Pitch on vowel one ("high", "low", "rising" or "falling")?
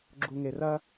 low